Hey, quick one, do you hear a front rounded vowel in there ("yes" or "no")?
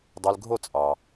yes